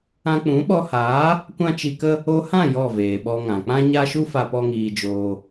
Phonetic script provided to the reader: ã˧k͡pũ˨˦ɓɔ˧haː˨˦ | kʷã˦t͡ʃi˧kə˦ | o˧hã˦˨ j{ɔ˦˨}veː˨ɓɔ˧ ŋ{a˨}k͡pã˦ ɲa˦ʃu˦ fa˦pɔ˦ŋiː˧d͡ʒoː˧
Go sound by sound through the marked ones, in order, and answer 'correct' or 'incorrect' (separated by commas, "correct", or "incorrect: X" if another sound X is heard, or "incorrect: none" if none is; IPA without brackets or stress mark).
correct, incorrect: ã˨